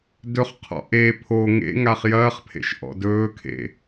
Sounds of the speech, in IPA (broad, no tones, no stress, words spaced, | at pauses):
dɵχqʰɔ̰ ʔe pʰo ŋḛ ŋaχjɐːχpʰḛʃ ʔɔ̰dɵːkʰḛ